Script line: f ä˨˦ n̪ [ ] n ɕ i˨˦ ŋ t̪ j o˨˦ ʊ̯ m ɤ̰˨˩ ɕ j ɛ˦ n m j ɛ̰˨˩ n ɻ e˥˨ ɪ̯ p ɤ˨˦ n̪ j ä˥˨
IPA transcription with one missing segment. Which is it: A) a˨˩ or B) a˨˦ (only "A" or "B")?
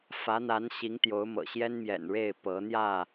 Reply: B